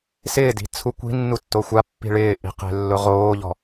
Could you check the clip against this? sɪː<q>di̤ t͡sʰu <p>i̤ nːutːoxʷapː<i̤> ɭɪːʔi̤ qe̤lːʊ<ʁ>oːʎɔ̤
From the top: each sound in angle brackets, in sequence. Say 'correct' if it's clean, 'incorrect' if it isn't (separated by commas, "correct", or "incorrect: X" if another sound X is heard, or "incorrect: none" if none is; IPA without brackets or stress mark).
incorrect: none, incorrect: kʷ, correct, correct